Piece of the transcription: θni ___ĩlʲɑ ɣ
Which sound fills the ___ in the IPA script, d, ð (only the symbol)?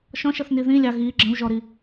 ð